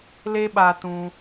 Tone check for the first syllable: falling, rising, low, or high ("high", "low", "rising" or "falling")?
high